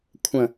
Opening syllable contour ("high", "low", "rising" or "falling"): low